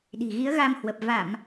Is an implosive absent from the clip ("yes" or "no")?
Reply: no